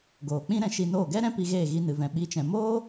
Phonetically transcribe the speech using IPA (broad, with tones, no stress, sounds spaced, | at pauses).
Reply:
ɡ oː˨ k͡p ĩ˦ ɾ ɛ̃˧ ʃ i˧ n oː˦˨ ɡ ɛ˦ ɾ ɛ̃˦ p i˧ ɣ eː˦˨ ɣ i˧ n ɨ˨ v ɛ̃˨ ɓ i˨˦ t͡ʃ ɛ̃˨ m oː˦